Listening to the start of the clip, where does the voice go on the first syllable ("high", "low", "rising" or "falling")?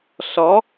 rising